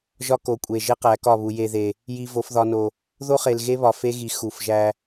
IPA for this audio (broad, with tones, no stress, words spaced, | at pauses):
ʒɒ˦ko˨kʷʼe˨ ʒe˦qæ˨˦kɒ˦˨βu˨ je˨ðe˨ | ji˨ vo˨fðɒ˨no˨ | ðo˦χe˨lɣe˦βɒ˨ fe˦ɣi˨ xu˨f ʒæ˦